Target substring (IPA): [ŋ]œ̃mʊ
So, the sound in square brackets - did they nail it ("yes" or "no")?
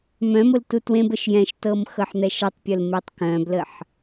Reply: no